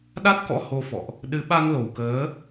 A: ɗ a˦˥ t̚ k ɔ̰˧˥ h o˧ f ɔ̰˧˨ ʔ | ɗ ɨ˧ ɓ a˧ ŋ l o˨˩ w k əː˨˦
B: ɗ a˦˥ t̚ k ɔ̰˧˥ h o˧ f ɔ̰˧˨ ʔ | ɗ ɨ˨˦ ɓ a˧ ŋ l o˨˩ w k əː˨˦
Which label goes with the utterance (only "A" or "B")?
B